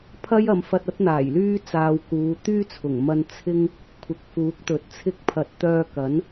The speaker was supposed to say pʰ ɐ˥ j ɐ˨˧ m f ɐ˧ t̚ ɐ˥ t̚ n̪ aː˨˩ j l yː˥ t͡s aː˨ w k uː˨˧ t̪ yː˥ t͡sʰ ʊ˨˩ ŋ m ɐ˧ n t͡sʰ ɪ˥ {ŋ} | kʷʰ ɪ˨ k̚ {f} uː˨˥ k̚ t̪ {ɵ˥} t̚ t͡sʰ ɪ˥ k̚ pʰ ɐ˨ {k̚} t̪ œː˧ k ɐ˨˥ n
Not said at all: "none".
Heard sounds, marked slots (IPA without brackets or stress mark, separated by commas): ŋ, f, ɵ˨˥, t̚